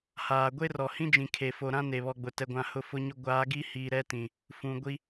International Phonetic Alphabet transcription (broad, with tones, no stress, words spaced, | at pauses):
haː˨ ɡʷe˦rɔ˨hĩ˦d͡ʒĩ˨ kʰe˨fo˨ɾã˦ ne˨βɔ˨ɡ͡bʊ˨ tɛ˨ɡʷã˨ hʊ˦˨fʊ˦ɲʊ˦ ɡʷaː˨˦ɡi˦hiː˨ ɾɛ˦tĩ˨ | fũ˨ ɡʷi˦